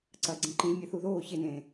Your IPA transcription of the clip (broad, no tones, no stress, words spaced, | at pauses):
ǀɐːɡ͡ǀĩǃĩʒ mʲɛθuðoː çenẽː